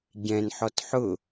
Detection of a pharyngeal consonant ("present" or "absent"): present